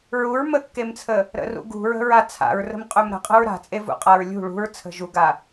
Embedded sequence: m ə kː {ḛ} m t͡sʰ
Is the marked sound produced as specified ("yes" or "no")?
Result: no